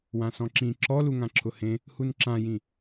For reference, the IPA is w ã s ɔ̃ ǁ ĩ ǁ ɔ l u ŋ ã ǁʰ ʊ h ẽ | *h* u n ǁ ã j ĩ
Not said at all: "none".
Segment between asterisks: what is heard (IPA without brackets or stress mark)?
h